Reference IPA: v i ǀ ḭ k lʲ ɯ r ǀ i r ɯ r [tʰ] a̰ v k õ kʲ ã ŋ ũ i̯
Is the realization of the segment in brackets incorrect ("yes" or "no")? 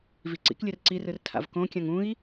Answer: no